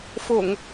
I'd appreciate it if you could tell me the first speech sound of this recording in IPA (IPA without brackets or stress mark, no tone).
f